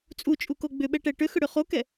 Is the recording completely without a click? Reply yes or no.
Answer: yes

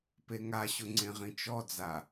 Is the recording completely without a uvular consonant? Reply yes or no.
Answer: no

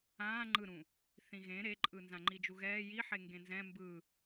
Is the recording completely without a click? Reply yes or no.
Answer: no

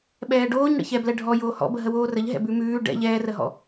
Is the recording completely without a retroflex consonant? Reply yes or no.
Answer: no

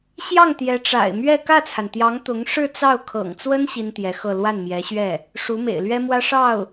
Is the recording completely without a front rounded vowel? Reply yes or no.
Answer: yes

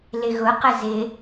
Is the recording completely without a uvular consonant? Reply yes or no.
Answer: no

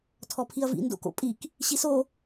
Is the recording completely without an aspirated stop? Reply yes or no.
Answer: no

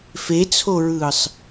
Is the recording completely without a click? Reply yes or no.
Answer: yes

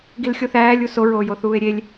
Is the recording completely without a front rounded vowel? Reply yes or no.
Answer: yes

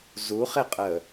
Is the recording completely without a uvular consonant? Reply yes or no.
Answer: no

